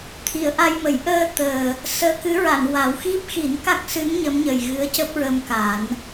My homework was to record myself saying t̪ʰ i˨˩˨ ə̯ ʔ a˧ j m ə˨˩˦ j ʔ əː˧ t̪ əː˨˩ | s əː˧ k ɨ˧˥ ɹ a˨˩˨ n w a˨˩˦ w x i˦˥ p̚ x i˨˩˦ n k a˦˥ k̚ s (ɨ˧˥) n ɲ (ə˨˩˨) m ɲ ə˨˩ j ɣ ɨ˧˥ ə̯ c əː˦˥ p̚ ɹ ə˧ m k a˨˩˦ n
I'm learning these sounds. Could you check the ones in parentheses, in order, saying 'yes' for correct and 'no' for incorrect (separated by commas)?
yes, no